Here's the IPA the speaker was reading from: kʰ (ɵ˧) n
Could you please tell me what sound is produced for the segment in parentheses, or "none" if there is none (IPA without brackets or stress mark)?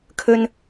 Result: ɵ˧